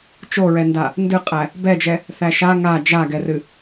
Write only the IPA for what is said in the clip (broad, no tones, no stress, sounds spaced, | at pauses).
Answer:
t͡ʃ o ɹ ɛ n d a | n d ɨ qʼ æ | b ɛ d͡ʒ ɛ | θ æ ʃ a ŋ a d͡ʒ a ɡ ɛ r ɨ